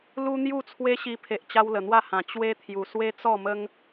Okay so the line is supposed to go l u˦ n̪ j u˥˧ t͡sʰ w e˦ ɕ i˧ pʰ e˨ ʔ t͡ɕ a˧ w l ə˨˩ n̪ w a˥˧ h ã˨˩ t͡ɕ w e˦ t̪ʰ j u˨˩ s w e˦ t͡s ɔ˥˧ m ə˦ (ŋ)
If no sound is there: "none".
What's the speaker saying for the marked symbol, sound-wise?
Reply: ŋ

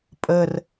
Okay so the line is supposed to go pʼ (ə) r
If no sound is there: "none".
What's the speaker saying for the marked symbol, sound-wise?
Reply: ə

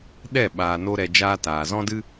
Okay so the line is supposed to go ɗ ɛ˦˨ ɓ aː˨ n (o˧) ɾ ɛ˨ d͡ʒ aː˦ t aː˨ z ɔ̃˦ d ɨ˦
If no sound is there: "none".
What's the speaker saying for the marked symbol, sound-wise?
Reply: o˧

